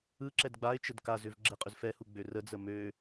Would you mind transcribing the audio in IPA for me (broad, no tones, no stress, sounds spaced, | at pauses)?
ɯ ǁ ɛ d ɡ͡b a ɪ̯ t͡ʃ ə d k a z ʏ v ɡ͡ǁ ɛ qʼ ʏ z f ɛ h u ɡ͡b ø r ə d͡z ə m ø